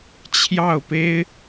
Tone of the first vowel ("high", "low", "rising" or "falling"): falling